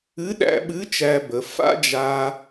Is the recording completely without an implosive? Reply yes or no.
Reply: no